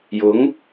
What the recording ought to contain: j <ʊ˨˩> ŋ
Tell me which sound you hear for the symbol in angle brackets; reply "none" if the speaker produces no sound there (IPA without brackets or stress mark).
ʊ˨˥